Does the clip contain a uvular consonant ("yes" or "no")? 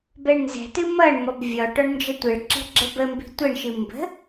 no